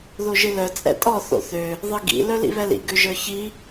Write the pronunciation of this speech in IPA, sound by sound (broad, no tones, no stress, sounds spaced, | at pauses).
ð o ʒ ɨ l œ t͡sʼ ɛ̰ tʼ ɔ θ o̰ θ ø | ðˤ ɨ ɡ ḭ l œ l ḭ β ɛ l ḭ ɡ ø ʒ ə˞ ç i